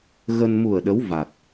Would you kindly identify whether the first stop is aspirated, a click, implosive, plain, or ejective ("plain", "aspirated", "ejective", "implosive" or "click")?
implosive